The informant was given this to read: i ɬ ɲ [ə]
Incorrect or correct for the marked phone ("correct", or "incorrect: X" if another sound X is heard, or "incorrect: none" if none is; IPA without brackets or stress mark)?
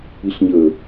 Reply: correct